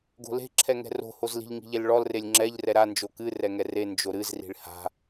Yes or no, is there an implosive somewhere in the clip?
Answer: no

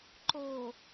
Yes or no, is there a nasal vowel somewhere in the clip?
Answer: no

